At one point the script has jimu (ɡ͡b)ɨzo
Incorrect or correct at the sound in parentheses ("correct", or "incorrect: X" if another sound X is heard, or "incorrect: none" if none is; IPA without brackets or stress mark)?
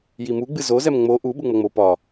correct